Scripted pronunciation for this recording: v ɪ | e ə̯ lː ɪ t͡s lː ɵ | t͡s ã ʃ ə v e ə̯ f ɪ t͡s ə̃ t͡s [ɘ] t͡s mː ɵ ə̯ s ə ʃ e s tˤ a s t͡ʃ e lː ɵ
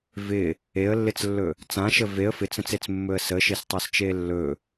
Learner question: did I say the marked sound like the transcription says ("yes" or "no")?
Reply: no